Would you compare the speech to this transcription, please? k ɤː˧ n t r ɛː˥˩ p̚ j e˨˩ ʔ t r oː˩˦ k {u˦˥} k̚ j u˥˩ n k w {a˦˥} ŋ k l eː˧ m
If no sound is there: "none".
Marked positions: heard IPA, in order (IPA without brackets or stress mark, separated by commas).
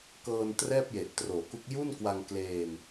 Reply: u˦˥, a˧